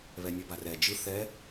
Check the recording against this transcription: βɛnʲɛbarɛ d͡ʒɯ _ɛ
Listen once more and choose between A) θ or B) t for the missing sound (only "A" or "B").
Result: A